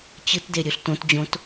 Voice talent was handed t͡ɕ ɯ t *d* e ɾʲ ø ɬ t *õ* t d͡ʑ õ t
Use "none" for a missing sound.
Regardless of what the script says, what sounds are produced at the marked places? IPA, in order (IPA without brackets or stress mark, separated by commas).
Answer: d, õ